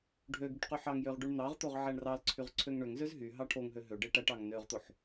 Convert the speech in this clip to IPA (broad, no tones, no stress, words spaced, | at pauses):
ɖʱøɡyʈ qyħɑŋjøʁ ɖyɳn̪ɑʁt̪oʁ ʕæɳrɑlǀʰyʁ ǀʰøŋɳøŋzøz ɦy ɦɑʈʰoŋɦø ɦøɖe ʈæʈ ɑŋnøʁt̪oħ